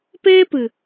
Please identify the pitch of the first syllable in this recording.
high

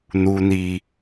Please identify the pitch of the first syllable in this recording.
high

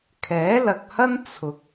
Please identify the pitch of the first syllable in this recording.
rising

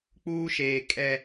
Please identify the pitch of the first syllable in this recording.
high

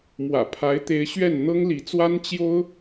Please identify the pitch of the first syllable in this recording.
low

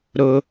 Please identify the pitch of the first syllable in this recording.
low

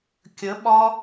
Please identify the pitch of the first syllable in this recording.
rising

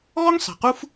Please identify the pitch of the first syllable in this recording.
high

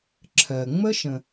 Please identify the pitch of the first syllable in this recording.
low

